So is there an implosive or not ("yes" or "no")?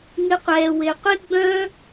no